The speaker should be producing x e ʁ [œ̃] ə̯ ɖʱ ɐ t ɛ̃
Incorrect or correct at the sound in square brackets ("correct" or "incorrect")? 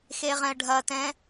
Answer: incorrect